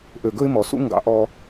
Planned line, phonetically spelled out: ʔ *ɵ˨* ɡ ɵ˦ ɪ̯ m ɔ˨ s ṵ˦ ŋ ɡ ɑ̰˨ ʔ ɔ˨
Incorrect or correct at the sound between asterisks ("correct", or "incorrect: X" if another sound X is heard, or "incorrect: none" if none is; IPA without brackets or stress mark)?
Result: incorrect: ø˨